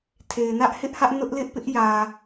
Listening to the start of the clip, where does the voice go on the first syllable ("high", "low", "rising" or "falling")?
low